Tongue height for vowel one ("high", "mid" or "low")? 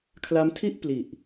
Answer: low